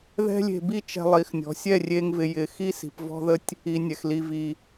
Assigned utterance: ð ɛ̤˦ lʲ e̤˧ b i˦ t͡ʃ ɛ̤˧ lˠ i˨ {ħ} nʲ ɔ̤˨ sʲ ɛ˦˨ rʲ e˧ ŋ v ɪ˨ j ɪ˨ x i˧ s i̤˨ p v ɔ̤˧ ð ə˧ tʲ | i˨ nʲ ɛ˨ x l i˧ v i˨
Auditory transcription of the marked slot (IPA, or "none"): x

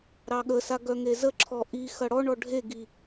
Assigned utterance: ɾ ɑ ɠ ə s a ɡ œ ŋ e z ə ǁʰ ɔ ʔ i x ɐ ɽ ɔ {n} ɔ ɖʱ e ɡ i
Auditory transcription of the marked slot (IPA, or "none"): ɳ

